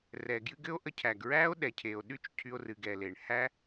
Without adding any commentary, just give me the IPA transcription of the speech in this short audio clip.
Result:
r ɛ˩ ɡ j ɨ˦ ɡ ɘ˥ o̯ ʔ ə˦ cʰ æ˩ ɡ ɹ æ˦ o̯ ɗ ɛ˩ cʰ e˩ o̯ ɗ y˦ t͡ʃ cʰ y˨ o̯ r ɨ˩ ɡ ɛ˩ l e˩ ɳ h æ˦

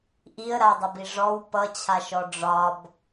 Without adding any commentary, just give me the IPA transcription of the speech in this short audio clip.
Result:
ʔ i ə̯ ɾ a dˤ ə b i ʐ ɔ w p ʌ t͡ɕʰ a ʃ ɔ ɖ͡ʐ ɒ b

